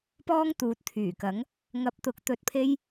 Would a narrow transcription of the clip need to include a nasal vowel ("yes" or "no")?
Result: no